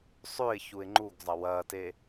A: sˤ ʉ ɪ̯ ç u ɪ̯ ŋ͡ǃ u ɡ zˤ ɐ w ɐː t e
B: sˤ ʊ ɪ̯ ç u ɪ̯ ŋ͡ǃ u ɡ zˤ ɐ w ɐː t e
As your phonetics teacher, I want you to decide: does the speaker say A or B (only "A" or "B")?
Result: A